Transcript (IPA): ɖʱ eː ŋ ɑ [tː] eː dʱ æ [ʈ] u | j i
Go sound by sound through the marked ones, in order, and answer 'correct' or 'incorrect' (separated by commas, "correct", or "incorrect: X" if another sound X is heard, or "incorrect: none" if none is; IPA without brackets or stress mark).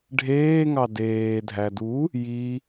incorrect: d, incorrect: d